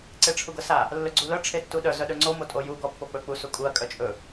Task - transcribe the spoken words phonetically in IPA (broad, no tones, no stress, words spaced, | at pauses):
ǀeʈ͡ʂʰuɡɤsa | lːɵɡ͡ǀulœ ʈ͡ʂʰetːuɗœ zœɗɵŋ͡ǀo motʼoju ɡɔpːok͡pɵ k͡pusukʼuɐ̯ kʼœt͡ʃʼɵ